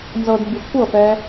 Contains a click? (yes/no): no